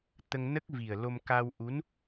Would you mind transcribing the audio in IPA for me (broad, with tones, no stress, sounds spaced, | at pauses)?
t̪ ə˧ ŋ n ə˦˥ k̚ v i˨˩ ə̯ l o˧ m k a˧ w ʔ u˧˥ n